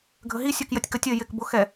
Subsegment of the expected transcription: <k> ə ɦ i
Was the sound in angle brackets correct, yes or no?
no